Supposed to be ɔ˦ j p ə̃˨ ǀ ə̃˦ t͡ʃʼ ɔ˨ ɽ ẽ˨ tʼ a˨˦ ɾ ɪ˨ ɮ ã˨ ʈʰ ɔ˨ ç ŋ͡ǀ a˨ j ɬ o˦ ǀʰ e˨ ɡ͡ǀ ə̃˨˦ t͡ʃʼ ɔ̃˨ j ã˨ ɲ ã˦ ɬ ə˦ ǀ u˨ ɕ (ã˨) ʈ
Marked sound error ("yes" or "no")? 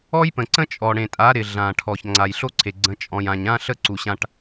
yes